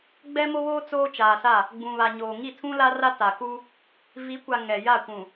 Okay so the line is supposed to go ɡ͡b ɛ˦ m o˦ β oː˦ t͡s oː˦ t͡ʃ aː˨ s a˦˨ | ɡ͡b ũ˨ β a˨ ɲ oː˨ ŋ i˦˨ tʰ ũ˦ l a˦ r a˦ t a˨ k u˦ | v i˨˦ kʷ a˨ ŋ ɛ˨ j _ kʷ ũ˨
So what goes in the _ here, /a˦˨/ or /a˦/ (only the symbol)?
a˦˨